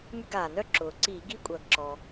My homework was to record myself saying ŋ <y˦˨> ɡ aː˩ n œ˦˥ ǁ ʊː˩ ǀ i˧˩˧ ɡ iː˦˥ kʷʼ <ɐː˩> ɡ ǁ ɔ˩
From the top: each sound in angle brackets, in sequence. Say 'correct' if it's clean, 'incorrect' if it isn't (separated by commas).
correct, correct